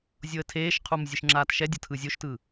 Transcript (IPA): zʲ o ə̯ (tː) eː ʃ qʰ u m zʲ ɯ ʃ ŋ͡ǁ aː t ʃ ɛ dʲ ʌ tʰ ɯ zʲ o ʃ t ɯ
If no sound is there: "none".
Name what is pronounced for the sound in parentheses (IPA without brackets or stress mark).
tʰ